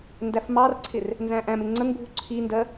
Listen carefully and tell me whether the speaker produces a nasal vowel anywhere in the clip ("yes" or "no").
yes